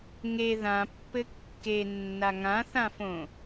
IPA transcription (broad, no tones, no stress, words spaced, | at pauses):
ŋe ðãpːɘ kːenːa ŋãθãfõ